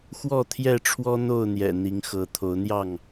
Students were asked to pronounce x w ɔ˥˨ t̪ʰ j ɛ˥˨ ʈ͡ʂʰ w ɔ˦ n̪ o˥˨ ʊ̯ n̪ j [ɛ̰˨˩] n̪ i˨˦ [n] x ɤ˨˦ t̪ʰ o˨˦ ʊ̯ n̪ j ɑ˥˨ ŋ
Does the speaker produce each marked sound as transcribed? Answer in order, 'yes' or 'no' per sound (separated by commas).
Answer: yes, no